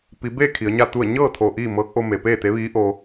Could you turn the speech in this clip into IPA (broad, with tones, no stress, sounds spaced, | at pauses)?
p i˩˧ b eː˥˨ kʰ i˩˧ ə̯ ɲ a˥˨ t̪ u˥˨ ə̯ ɲ ɤː˥˨ t̪ʰ o˧˩ ʔ iː˥˨ m ɤː˧˥ k̚ ʔ o˧ m e˩ p eː˥˨ t̪ e˧˥ ʋ iː˧˥ ʔ o˧